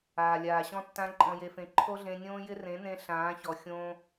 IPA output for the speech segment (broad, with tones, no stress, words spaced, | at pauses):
aː˨lʲaː˨ ɕɔ̃˦tːã˦ ǃʼɔ̃˧je˧fẽ˧ ǃʰo˦ɮẽ˧nʲõː˦jɪ˦ rẽ˨˦nẽ˧ ɬãː˨˦çɔ˨ xʲõː˧